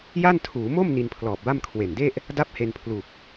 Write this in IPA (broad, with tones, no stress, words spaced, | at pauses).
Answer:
ja˥˩ntʰuː˩˦ mo˥˩m ni˧npʰlɔː˨˩p̚ba˥˩m kʰwe˨˩nde˥˩ʔ | da˦˥p̚ he˧npʰlu˨˩k̚